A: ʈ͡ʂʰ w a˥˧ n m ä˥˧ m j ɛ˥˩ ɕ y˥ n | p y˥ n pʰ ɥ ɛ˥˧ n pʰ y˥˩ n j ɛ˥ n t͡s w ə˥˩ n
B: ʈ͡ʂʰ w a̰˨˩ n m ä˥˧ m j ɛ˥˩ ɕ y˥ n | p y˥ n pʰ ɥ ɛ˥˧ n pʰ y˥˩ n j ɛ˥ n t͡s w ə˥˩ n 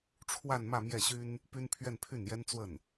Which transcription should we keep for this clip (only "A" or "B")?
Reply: A